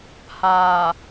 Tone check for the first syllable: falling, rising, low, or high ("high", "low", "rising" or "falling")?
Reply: low